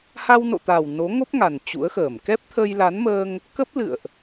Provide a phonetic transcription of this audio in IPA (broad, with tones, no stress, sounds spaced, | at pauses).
h a˧ w n o̰˧˨ t̪ a˨˩ w n o˨˦ ŋ o˦˥ p̚ ŋ a˨˩ n t͡ɕ ṵ˧˥ ə̯ x əː˧˩ m k ɛ˦˥ p̚ t̪ʰ əː˧ j l a˨˦ n m əː˧ ŋ | k ə˦˥ p̚ l ɨ̰˧˨ ə̯ ʔ